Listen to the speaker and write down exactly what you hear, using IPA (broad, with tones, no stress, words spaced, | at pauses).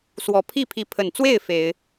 swɔ˨˩pʰi˥˨pʰi˨˦ pʰə˨˩nt͡swe˥˨ɪ̯ fe˨˦ɪ̯